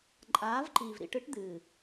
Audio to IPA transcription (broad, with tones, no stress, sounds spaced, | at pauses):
ǃʼ aː˨˦ v ǃ i˨ v ɾ ḭ˦˨ ʈ ɨ˦ ʈ d̪ ɨː˨